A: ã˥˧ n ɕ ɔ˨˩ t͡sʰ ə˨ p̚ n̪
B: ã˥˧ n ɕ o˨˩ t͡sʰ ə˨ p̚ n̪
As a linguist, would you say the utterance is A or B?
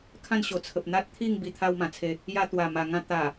B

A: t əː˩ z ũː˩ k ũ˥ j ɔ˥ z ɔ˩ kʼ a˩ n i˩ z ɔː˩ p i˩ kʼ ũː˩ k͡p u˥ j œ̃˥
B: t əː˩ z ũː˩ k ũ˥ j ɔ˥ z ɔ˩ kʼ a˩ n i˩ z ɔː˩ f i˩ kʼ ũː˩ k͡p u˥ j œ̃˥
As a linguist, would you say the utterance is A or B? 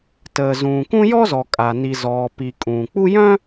A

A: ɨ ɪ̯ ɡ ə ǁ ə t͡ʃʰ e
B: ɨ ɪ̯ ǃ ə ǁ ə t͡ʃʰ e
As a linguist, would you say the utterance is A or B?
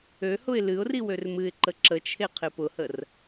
B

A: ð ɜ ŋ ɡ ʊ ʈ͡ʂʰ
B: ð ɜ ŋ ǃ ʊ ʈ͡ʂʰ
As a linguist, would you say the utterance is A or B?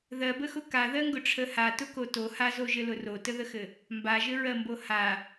A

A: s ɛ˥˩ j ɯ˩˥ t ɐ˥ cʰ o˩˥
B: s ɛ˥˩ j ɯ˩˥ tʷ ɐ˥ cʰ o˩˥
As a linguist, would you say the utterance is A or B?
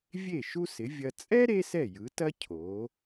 A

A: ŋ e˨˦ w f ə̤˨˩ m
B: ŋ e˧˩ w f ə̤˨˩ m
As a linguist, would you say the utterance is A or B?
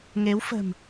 A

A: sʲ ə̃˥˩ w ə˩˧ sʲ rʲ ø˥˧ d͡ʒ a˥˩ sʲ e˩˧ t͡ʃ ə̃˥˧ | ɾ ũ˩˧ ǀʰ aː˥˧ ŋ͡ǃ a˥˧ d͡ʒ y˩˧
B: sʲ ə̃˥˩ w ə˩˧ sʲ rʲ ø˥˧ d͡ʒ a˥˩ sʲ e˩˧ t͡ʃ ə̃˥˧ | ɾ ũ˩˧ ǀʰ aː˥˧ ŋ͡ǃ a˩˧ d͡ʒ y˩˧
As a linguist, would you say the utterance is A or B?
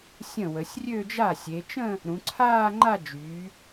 A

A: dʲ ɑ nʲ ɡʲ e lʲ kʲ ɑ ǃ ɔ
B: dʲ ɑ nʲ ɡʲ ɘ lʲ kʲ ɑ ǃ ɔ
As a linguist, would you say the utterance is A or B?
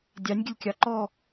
B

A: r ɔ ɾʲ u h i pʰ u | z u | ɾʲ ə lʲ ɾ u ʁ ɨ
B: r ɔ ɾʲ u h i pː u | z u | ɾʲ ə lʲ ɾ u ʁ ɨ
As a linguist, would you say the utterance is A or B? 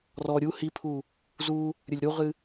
A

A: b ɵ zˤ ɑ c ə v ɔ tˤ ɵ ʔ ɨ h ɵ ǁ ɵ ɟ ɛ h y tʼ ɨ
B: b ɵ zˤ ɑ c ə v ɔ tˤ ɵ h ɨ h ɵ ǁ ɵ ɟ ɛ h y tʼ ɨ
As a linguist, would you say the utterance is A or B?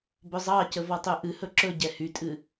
A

